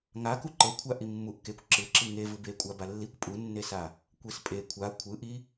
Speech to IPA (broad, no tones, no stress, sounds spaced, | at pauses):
ŋ a k u ǃ ɤ kʷʰ a ʔ i mː u ʔ k e kʷ ǁ ɯ ǁ i ŋ e v ɯ b e kʷʼ a b a lː i kʷ pʼ u nː e s a | kʷ e s pʼ e kʷʰ a kʷʰ ɯ ʔ i